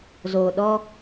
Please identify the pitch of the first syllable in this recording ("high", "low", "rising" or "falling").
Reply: low